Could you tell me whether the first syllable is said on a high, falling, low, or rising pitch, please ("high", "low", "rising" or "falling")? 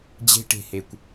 high